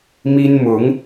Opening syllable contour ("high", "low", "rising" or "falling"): high